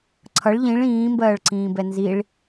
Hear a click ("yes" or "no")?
yes